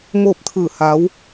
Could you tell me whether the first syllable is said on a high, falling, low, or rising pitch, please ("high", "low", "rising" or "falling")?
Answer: falling